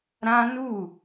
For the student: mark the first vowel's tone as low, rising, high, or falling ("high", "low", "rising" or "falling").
high